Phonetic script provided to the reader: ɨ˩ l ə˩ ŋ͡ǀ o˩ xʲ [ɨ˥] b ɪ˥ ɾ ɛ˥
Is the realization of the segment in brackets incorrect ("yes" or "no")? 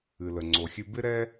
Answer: yes